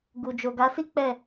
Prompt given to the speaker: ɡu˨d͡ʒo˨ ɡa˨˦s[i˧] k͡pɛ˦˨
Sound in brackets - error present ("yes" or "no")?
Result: yes